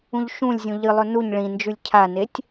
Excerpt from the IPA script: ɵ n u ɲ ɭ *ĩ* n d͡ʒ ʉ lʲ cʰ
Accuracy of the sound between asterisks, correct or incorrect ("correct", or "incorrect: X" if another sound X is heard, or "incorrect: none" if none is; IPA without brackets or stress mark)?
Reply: correct